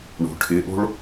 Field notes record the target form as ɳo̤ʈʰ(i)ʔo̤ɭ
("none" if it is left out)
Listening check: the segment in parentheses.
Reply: ɪ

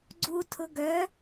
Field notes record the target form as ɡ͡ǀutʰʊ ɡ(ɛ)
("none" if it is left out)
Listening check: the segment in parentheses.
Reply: œ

